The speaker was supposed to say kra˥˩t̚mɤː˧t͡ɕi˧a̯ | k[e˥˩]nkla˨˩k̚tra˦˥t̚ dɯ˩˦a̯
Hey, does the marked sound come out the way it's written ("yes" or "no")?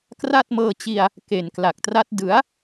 no